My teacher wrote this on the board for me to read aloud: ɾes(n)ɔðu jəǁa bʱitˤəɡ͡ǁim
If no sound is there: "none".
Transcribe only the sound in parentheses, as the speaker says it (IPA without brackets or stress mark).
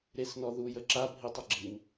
n